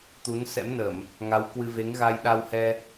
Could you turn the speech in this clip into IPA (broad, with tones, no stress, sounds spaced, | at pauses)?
t̪ u˨˦ n s ɛ̰˧˥ m n ə˧˩˨ m | ŋ a˨˦ w k w ɨ˧ v e˨˦ ŋ ɣ a˧ j ɗ a˧ w h ɛ˧